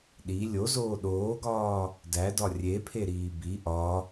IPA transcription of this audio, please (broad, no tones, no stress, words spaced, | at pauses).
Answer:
ɗi lʲozoː ɗoːɡɒː | dædɒ rʲepʰeɾiː bi ʔɒ